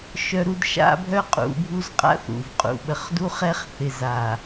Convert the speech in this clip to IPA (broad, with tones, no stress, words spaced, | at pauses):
ʃœ˦ɾu˦d ʃa̰˦bʱœ˦ qʼṵ˨˦bʱu˦zqʼa̰˦θ ṵ˨vqʼṵ˨ ɓə˨χdu˦χɛ˦χθɪ˨z a˨